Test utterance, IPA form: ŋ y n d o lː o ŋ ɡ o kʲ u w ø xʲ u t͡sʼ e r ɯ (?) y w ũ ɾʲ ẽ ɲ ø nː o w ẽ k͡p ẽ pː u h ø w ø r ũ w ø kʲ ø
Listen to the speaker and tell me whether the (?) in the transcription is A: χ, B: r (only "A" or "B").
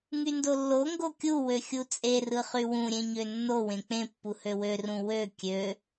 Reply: A